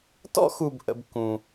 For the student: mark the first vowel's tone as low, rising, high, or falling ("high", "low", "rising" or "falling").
high